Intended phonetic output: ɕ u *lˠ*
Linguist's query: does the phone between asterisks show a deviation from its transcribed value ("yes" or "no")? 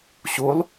no